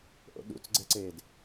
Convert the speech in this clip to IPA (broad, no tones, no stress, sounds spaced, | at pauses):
ʔ o̰ ɗ ṵ t͡s ɡ͡ǀ ɛ ǀ eː d